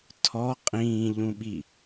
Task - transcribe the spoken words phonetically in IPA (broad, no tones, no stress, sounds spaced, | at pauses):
tʰ ɔ qʼ ĩː ʎ ũ ɓ i